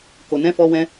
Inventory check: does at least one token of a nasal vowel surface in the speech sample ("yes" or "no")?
yes